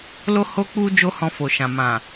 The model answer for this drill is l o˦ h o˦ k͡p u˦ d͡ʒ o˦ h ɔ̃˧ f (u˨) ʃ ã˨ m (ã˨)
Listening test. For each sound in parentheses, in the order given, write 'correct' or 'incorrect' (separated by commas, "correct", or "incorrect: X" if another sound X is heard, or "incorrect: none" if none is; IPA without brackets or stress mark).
incorrect: o˨, correct